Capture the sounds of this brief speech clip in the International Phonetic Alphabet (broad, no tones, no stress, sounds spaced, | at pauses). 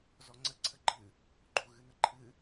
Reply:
z ɔ ŋ͡ǀ ə ǀʰ ə ɡ͡ǃ ɨ | ɡ͡ǃ u ɣ ɨ n ə ǃʰ ɨ